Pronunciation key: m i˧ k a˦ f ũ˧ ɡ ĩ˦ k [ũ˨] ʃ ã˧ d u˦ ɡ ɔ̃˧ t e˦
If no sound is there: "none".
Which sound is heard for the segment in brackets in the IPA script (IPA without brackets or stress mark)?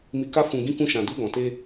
ũ˦